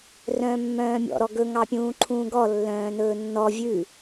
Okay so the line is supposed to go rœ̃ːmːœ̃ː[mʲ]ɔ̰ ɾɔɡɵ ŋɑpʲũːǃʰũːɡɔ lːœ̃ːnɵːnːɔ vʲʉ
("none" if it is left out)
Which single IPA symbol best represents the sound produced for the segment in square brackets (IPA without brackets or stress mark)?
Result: mʲ